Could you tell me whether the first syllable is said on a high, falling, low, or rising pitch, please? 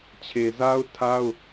low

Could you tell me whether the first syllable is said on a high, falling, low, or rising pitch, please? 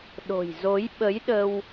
low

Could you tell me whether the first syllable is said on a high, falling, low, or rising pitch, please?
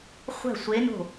falling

